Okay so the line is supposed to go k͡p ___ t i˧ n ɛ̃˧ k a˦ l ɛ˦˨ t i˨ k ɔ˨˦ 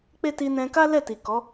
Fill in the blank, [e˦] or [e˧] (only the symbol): e˦